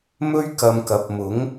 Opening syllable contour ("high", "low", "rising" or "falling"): high